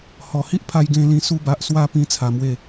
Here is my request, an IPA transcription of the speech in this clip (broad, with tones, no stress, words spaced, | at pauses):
hɔ˨˩hi˦ʔpʰa˧j ɡẽ˧lĩ˧ su˧ba˨ʔ swa˧ pĩ˦t͡sʰa˨˩mwe˥˧